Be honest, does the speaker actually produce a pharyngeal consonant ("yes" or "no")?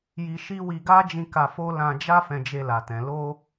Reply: no